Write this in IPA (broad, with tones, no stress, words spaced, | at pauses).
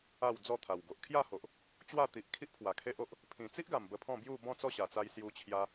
a˥˧wd͡zɔ˥˧t̪ʰa˨˩w ɡo˨ʔ kʰja˥˧ho˨ʔ | t͡ɕwa˥˧t̪i˨ʔ kʰi˦ʔpʰwa˨˩ kʰe˦ʔo˦ʔ | pʰĩ˨˩t͡si˦ʔɡa˨˩m bə˧pʰɔ̃˥˧bju˥˧ bɔ̃˥˧t͡sɔ˥˧ɕa˨˩t͡sa˧j sju˧t͡ɕʰja˧